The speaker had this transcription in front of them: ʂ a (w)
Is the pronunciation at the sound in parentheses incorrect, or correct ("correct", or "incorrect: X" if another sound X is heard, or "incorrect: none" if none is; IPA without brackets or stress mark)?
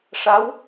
correct